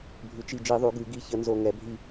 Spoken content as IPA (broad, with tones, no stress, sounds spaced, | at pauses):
bʱ ʉ˩˧ t͡ʃ i˧˩ d͡ʒ i˧˩˧ ðˤ ʉ˩˧ ɡ ʉ˧˩˧ ɡ i˧˩ ç ə˧˩˧ n z o˧˩ ŋ ɛ˩˧ bʱ i˧˩